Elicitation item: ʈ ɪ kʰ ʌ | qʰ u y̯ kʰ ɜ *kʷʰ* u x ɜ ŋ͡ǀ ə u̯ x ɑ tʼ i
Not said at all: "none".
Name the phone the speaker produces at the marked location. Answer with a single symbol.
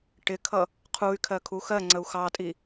kʰ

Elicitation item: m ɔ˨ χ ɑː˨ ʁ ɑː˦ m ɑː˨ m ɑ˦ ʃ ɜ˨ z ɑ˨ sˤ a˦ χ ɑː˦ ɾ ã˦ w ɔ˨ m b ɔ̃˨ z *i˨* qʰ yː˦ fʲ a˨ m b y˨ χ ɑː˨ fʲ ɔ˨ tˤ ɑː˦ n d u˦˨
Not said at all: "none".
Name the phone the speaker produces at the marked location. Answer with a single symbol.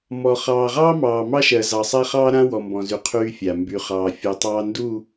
y˨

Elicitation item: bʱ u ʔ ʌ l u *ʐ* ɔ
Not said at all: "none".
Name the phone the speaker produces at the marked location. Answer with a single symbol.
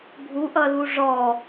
ʐ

